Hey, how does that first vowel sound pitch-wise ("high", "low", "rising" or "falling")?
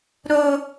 high